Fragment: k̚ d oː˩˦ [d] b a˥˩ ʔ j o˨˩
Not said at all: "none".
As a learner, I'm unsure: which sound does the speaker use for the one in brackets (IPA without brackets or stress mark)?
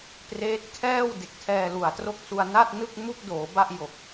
none